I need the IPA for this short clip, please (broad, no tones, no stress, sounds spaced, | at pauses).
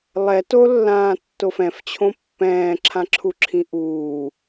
lˠ ɛ t o lː ãː tː o f ɛ̃ f t͡ɕʰ õ pː ɛ̃ː ǁʰ ã ǁʰ u ǁʰ ĩ ʔ uː